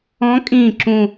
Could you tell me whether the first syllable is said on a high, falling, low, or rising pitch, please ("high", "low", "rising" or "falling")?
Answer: rising